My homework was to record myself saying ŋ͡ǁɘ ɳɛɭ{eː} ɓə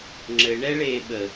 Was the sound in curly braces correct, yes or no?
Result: yes